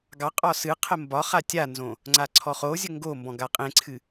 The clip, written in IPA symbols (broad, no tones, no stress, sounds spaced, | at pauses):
ɡ ɑ qʼ ɒ s ɨ qʰ ə m b ɒ χ a tʲ a n z õ | ŋ͡ǀ a ǀʰ ɔ χ o zʲ ə ŋ ɡ o m b ɔ̃ ɡ a qʼ ẽ ǀʰ ɨ